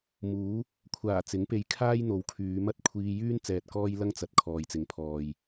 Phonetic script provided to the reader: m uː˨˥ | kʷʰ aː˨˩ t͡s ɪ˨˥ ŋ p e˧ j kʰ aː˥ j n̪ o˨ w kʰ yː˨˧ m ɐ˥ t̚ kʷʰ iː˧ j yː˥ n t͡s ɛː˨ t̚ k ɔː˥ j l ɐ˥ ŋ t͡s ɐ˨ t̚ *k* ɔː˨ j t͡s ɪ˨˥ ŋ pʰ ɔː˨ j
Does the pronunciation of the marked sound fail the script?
yes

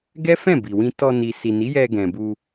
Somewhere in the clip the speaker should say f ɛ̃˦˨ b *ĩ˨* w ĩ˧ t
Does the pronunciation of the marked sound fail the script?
yes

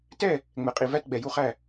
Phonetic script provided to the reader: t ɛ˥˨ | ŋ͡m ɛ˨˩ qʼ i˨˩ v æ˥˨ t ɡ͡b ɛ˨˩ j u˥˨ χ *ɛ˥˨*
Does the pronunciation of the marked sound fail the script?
yes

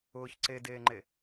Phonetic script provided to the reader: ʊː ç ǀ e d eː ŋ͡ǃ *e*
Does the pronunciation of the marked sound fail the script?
no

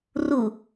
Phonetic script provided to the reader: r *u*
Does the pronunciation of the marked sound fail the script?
no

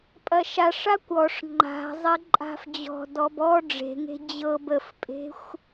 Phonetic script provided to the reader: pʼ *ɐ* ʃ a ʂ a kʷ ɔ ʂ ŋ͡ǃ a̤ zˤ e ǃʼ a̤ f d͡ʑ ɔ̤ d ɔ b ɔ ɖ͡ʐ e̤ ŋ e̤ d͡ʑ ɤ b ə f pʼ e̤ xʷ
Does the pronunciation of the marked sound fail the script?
no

